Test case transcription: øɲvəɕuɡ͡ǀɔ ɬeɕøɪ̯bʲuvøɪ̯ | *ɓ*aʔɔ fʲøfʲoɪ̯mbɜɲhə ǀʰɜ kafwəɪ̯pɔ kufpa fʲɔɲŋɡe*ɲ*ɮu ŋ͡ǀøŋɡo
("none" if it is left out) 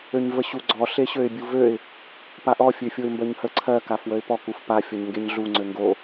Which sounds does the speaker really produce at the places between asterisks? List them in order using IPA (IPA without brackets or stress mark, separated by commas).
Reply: p, ɲ